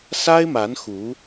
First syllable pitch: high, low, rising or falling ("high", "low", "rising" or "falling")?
high